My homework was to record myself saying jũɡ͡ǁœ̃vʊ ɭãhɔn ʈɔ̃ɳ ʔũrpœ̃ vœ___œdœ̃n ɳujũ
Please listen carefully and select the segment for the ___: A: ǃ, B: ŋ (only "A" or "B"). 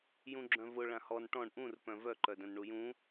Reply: A